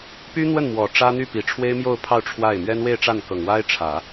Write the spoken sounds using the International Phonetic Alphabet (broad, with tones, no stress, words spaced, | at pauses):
py˥n̪wə˥˩n mwɔ˨˩ʈ͡ʂä˥ n̪y˥˩ pi˨˩ʈ͡ʂʰwe˥ɪ̯mjo˥˧ʊ̯pʰɑ˥˧ʊ̯ ʈ͡ʂʰwa˥˩ɪ̯ mɥɛ˥nwe˥˧ɪ̯ʈ͡ʂa˥˩n kɤ˨˩ŋwa˥ɪ̯ ʈ͡ʂʰä˨˩˦